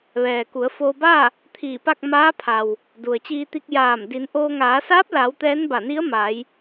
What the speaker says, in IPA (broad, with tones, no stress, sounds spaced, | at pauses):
ʋ ɛː˩ k u˩˧ ə̯ f oː˧ b a˥˨ | t̪ʰ iː˧˩ p a˥˨ k̚ m aː˧˥ pʰ a˩ w | d u˩ ə̯ t͡ɕ iː˧ t̪ i˧ k̚ j aː˧˩ m d i˩˧ n ʔ oː˧ ŋ aː˩˧ s aː˧˥ p̚ l a˩˧ w t̪ ɛː˧˥ n b a˧˩ n i˧˥ ə̯ m a˩˧ j